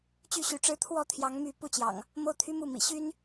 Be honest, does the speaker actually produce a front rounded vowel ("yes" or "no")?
yes